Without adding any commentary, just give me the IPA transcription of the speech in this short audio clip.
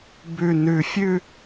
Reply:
b ʉ˨˩ n ʉ˨˩ fʲ ʉ˥˧

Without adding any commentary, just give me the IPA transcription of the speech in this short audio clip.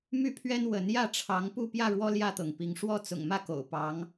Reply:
m y˥˨ pʰ ɥ ɛ˦ n w ə˨˦ n j ä˥˨ ʈ͡ʂʰ ɑ˨˦ ŋ p u˥˨ p j ä˥˨ ɻ w ɔ˦ l j ä˥˨ t̪ ɤ˩ ŋ p i˨˦ ŋ ʂ w ɔ˥˨ t͡s ʊ̰˨˩ ŋ m ä˥˨ k o̰˨˩ ʊ̯ p ɑ˨˦ ŋ

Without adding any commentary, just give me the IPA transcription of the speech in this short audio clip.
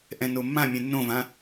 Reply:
ʔ ɛ̃ n o mː ã mʲ ɛ̃ nː õ v ã

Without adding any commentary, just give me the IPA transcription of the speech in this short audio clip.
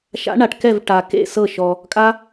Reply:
ʃ a̰˨˥ ɳ a˨ ʈ k ɛ˥˩ v ʈ a˨ k ḛ˥˩ s ɤ˥˩ ʃ ɔ˨ | kʼ a˦˥

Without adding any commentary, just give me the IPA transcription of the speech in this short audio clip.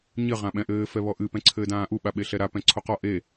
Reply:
ɲ ɘ ʁ ã ɓ ɛ̃ ʔ ɘː f ɛ β ɔ ʔ ɨ p ɛ̃ ǀʰ ɘː d ãː ʔ u ɓ a ɓ e ɬ ɛ ɾ a p ɛ̃ ǀʰ o q ɔ ʔ e

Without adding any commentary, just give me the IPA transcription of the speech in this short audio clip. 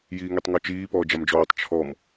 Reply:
j iː ŋ e tˤ ŋ ɔ t͡ʃ iː p ɔː d͡ʒ a m d͡ʒ ɔː tˤ t͡ʃʰ ɔ m

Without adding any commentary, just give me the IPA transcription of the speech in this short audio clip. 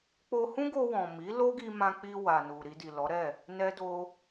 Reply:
k͡p o˧ h ũ˦ ɡ o˧ w ɔ̃˨ m i˨˦ l o˦ ɡ i˧ m ã˧ k͡p i˧ w a˨ n u˨ ɾ i˧ d i˨ l ɔ˨˦ ɾ ɛ˦˨ | n ɛ˦ d o˦

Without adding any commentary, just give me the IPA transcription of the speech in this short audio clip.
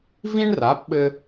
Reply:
v ĩ˥ ɳ r a˩˥ p ɓ ɘ˧

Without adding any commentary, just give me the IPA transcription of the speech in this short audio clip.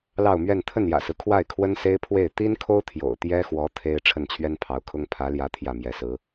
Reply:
l ɑ˥˧ ʊ̯ m ɥ ɛ˥˧ n t̪ʰ ə˥˩ n j ä̰˨˩ s ɹ̩˦ kʰ w a˥˩ ɪ̯ kʰ w ə˥ n s e˥ ɪ̯ pʰ w e˥˩ ɪ̯ t̪ i˥ n kʰ o˥ ʊ̯ t̪ʰ j o̰˨˩ ʊ̯ t̪ j ɛ˥ x w ɔ˧˥ t̪ʰ e˥ ɪ̯ ʈ͡ʂʰ ə˥˩ n t͡ɕʰ ɥ ɛ˥ n pʰ ɑ˧˥ ʊ̯ kʰ ʊ˥ ŋ pʰ ä˧˥ l j ä˧˥ t̪ʰ j ä˥˩ m j ɛ˧˥ s ɹ̩˧˥

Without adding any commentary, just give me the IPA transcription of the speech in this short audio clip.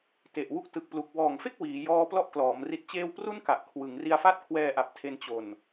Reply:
t e˨˩ ʔ w u˦˥ k̚ t ɯ˨˩ k̚ p l u˨˩ k̚ w ɔː˨˩ ŋ f e˥˩ k̚ w iː˩˦ j ɔː˦˥ p l ɔ˥˩ ʔ k l ɔː˩˦ m r i˨˩ t̚ t͡ɕ eː˧ w p r u˥˩ n k a˨˩ ʔ kʰ w ɯ˩˦ ŋ r i˧ a̯ f a˥˩ t̚ kʰ w ɛː˧ ʔ a˨˩ p̚ tʰ e˧ n t͡ɕ o˨˩ n

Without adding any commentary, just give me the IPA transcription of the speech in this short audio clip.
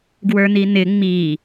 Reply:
ɡ w ə˞ n̪ i n̪ ɪ ŋ͡m i

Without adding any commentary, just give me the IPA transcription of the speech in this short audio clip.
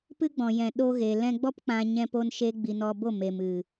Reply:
p ɨ˦ ɡ͡b ɔ̃˨ j ɛ̃˨ ɗ o˧ ɣ e˨ l ɛ̃˧ ɡ͡b ɔ˦ p k͡p ã˧ ɲ ɛ̃˦ p o˦ n ʃ e˦ ɡ͡b i˧ n ɔ˧ b o˦˨ m e˨ m ɨ˨

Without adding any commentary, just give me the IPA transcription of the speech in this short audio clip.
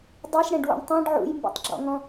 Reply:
dˤ i ʃ ɽ ɛ̃ ɖ w ṵ ɳ tˤ ĩ ɖ ʕ ṵ j m b ṵ tˤ ɡ͡ǁ ɔ̰ ŋ ɔ̃

